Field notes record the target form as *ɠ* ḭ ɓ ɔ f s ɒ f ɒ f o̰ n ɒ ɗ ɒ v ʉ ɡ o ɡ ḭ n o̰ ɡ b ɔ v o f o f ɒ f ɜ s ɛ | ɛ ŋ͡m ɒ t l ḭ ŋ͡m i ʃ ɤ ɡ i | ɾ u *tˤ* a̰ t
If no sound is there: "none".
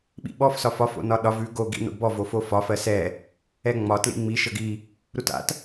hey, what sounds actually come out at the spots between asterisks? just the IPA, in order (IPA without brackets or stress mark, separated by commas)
ɓ, t